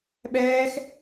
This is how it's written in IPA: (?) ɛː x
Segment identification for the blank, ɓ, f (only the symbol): ɓ